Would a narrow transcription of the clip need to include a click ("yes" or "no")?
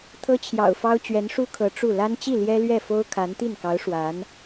no